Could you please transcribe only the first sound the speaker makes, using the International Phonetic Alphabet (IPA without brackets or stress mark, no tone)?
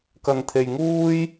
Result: k